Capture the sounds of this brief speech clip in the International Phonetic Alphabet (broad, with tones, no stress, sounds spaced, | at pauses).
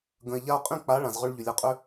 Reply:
ɡ ə̃˨ e̯ ʎ a˧ o̯ qʼ ĩ˦˨ k͡p a˨˦ ɭ ã˨ z ʁ ø˧ ɭ ʎ ʏ˨ lʲ a˧ qʼ ʏ˦